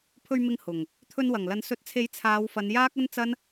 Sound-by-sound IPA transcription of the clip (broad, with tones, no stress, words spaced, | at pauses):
pʰɵ˨ɥ mɪ˧ŋ hʊ˨˩ŋ | t̪ʰɵ˧nwɐ˨˩ŋlɐ˨˧n sɵ˨˥t̚t͡sʰe˨˥j t͡sʰaː˨˧wfɐ˨˧njaː˥k̚ɐ˥n t͡sɐ˥n